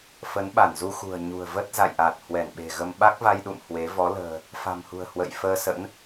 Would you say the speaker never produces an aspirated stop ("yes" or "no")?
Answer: yes